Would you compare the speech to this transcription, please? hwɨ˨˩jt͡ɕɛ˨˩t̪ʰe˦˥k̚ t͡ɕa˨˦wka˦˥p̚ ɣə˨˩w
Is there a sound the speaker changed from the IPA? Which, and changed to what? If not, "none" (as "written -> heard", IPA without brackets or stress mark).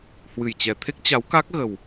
p̚ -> k̚